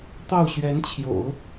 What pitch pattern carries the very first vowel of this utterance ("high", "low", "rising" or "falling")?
falling